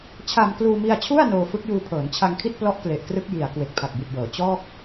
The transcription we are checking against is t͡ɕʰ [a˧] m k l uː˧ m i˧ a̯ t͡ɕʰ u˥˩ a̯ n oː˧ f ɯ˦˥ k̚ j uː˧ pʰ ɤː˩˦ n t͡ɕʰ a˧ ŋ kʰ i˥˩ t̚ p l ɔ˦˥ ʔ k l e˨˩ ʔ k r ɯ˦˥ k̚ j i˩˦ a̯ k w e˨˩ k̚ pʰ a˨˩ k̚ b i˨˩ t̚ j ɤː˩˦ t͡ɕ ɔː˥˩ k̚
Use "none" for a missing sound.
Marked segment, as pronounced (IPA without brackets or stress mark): a˧